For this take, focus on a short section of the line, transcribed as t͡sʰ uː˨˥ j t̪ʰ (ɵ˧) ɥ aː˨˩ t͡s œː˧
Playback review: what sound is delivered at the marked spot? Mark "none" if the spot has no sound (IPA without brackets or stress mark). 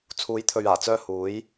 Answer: ɵ˨